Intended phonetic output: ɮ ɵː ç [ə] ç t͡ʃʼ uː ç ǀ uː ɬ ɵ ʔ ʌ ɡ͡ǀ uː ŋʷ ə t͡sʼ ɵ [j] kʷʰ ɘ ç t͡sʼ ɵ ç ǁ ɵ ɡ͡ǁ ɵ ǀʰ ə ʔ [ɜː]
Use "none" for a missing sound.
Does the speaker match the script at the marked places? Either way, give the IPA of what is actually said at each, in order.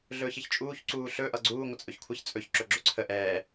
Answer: ə, ç, ɛː

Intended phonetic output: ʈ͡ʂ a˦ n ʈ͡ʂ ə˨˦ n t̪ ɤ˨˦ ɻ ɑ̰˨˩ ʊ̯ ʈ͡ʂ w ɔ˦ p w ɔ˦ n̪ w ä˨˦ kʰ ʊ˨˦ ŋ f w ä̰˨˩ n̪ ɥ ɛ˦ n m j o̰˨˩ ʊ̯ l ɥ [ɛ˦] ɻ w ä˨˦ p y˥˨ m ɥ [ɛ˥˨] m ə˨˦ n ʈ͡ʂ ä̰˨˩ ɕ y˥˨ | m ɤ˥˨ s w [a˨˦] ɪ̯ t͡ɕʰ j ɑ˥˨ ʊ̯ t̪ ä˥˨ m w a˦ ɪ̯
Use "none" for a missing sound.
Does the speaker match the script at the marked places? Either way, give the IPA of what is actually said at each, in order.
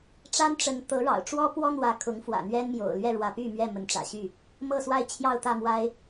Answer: ɛ˥˨, ɛ˥˨, a˥˨

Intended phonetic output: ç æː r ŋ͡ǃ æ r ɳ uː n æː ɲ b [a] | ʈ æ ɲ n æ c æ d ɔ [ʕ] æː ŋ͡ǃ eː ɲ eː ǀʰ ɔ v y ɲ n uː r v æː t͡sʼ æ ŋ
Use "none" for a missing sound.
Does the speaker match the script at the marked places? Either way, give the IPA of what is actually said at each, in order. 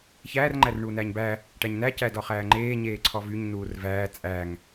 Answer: æ, χ

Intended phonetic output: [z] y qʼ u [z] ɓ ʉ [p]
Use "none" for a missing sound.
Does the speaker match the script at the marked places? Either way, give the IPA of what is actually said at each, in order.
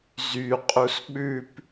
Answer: z, s, p

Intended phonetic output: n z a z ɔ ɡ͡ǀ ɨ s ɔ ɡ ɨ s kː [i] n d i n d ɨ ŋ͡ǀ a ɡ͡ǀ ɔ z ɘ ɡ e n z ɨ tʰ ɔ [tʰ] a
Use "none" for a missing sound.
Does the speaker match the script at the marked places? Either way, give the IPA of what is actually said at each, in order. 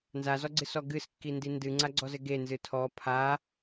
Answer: i, pʰ

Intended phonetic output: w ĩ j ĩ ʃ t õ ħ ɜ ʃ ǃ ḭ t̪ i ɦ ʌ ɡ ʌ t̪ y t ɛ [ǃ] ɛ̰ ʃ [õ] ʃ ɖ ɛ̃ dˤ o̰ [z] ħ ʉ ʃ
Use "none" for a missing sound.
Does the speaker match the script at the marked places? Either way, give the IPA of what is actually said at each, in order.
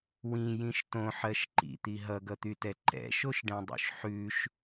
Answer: ǃ, o, ʃ

